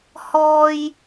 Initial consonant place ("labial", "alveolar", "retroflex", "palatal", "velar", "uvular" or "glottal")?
glottal